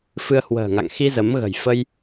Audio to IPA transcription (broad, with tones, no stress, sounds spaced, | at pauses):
f ɨ˧ ə̯ h w ə̤ː˨˩ ŋ a̰˧˨ ŋ x i˧ z ə˨˦ m ɣ ə̤˨˩ j f ə˧ j